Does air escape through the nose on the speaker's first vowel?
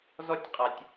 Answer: no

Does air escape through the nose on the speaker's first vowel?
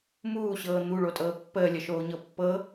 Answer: no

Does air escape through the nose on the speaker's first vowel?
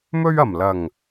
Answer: no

